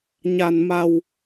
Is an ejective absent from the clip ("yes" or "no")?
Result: yes